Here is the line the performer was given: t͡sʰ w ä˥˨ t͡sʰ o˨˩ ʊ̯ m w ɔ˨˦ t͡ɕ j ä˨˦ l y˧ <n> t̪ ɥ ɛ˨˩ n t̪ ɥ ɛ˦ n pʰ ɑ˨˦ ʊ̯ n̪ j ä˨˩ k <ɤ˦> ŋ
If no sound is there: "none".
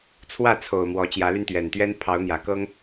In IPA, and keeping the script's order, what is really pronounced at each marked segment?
n, ɤ˦

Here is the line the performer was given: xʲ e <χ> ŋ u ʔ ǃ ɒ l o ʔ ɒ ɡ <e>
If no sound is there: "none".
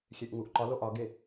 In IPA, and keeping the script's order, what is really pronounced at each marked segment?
ʔ, e

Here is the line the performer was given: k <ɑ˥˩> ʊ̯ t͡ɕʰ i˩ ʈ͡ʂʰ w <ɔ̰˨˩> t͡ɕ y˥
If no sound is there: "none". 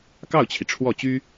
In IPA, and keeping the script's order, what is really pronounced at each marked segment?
ɑ˥˩, ɔ˥˩

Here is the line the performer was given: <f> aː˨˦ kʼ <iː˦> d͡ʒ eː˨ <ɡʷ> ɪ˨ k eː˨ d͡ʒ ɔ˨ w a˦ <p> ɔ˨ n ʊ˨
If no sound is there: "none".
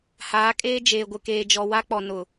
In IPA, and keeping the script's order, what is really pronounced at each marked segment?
h, eː˦, ɡʷ, k͡p

